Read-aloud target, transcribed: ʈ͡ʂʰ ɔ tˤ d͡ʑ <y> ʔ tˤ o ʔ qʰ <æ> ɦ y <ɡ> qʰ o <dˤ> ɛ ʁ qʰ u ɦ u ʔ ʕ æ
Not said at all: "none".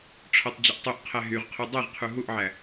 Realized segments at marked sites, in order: ɪ, æ, ʁ, dˤ

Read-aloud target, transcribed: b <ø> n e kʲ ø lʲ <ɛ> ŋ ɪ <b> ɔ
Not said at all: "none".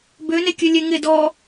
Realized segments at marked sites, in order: ø, e, d

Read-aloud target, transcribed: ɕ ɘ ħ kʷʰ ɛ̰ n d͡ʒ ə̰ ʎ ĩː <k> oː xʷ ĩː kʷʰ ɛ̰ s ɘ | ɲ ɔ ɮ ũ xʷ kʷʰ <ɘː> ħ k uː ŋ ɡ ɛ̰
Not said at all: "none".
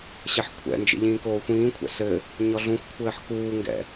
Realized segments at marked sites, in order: k, ɘː

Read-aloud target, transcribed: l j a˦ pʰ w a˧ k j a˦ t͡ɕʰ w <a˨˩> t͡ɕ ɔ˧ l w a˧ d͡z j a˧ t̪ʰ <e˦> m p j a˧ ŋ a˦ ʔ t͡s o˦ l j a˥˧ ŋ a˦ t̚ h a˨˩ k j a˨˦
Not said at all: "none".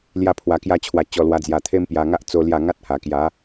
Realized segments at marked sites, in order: a˧, e˦

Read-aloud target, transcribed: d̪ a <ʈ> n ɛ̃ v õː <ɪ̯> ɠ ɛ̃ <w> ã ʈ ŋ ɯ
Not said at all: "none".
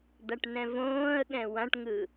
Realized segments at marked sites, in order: ʈ, ə̯, w

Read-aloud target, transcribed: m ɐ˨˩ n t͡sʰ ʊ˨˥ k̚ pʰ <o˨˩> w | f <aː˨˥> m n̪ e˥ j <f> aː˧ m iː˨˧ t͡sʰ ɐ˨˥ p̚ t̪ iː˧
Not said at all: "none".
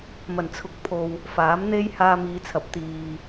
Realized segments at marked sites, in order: o˨, aː˨˥, h

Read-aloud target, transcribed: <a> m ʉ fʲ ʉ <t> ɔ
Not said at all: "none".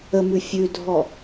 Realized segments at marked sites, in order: ə, dʱ

